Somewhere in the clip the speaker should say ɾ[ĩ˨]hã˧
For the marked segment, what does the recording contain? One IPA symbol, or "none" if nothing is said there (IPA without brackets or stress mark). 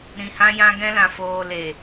ĩ˨